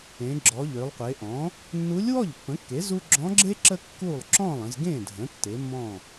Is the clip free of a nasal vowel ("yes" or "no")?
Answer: no